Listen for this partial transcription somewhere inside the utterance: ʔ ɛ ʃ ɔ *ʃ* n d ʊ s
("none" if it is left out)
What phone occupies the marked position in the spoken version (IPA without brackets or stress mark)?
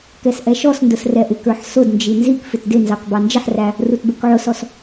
s